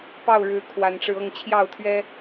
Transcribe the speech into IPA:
p ɑ˥˨ ʊ̯ ɻ ɻ̩˨˦ kʰ w a˨˦ n ʈ͡ʂ ɻ̩˧ ɤ˥˨ ŋ t͡ɕʰ j ɑ˥˨ ʊ̯ t̪ʰ ɥ ɛ˦

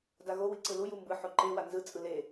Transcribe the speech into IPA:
d a ɣ o w i ǀ ɯ l u j u m b ɯ ħ o ǃ e w a n z ɯ t͡sʼ ɯ l e

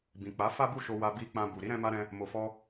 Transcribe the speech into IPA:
b ĩ˨ k͡p a˨˦ f a˦ b u˦˨ ʃ o˧ w a˧ b i˧ k͡p ã˧ b u˨ ɾ i˨˦ ɾ ɛ̃˧ m a˧ ɾ ɛ̃˧ | m o˨ f ɔ˧

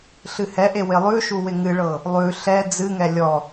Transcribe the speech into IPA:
ɬ ɨ h ɛ ʔ e w ɪ lˠ ʉ ʃ u w ɪ ŋ ɨ ɭ ɤ | lˠ ʉ ɬ ɛ d͡z ɨ ŋ ɛ lʲ ɔ

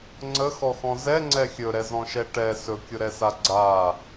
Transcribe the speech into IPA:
ŋ͡ǀ ə x ɔ x ɔ̃ z ɛ ŋ͡ǀ ɛ xʲ ɵ ɾ ɛ z ɔ̃ ʃ ɛ ʈ ɛ s ɵ kʲ ʊ ɾ ɛ s a ɡ͡ǀ a

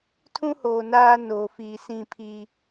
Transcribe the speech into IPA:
tʰ ũ˦ h oː˨ n aː˦ n oː˨ f iː˨ s ĩ˦˨ pʰ iː˦

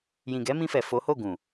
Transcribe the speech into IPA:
j ĩ˨ ɡ ɛ˨˦ m ĩ˧ f ɛ˨ f o˨˦ h o˦˨ ɡ ũ˨

